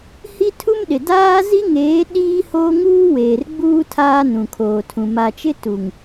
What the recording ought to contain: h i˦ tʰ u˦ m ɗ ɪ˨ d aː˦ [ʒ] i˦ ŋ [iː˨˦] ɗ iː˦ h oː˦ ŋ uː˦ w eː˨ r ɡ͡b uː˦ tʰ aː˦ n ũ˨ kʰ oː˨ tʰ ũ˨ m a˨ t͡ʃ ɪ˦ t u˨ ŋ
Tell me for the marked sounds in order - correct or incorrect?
incorrect: z, incorrect: eː˨˦

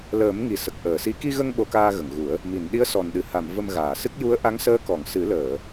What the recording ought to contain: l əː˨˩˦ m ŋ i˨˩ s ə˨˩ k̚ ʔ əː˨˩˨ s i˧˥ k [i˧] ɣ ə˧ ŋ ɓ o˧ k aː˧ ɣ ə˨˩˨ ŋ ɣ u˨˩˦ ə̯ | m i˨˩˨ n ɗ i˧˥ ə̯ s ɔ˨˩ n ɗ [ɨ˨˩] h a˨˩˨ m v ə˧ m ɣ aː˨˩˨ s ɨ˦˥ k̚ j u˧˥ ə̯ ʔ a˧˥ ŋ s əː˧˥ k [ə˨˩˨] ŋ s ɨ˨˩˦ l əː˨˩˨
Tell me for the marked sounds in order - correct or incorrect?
correct, correct, incorrect: ɔ˨˩˨

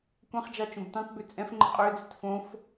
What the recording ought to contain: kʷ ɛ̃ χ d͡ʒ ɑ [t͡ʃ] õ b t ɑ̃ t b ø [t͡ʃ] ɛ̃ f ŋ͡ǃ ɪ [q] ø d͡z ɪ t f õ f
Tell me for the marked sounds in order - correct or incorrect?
correct, incorrect: t͡sʼ, incorrect: qʼ

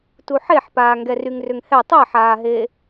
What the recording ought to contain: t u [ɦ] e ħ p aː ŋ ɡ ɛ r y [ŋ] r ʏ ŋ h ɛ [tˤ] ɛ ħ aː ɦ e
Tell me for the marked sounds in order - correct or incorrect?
incorrect: ħ, correct, correct

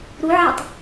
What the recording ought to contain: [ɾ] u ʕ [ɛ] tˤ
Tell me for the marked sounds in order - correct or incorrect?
correct, correct

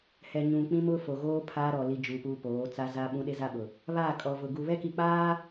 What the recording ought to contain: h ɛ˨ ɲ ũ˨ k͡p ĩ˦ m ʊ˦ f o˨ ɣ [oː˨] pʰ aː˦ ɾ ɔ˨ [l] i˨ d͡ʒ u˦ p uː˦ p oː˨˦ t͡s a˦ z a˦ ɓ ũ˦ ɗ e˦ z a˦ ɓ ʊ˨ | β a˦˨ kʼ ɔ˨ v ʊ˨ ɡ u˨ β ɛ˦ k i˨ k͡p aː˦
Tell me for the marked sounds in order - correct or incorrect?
incorrect: oː˦, correct

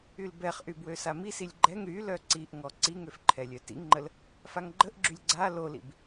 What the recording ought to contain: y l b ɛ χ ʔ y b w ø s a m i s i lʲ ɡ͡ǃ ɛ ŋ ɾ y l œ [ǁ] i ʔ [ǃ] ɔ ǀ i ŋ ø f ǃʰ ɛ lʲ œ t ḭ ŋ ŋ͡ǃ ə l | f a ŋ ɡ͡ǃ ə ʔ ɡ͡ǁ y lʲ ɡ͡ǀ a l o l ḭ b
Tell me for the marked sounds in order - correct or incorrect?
incorrect: ǀ, incorrect: ŋ

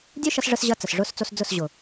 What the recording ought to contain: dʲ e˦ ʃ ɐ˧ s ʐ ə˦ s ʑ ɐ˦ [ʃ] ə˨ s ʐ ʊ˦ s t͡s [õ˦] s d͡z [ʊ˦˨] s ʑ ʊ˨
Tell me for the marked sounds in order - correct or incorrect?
incorrect: t͡s, incorrect: o˦, correct

